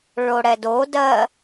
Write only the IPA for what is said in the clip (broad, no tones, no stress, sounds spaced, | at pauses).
ɭ o ɽ ɛ d o d ɜ